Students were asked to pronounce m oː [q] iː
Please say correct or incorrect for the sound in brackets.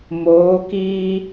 incorrect